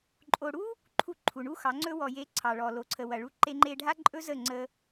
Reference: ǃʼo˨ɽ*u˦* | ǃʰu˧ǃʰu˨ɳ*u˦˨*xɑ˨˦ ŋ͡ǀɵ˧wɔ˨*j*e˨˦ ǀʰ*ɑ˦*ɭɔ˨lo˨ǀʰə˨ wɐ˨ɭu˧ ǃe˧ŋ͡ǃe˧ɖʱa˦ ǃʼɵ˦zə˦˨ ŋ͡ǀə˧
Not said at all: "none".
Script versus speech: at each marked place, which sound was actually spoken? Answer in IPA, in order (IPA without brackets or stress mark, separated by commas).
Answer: u˦, u˦, j, ɑ˨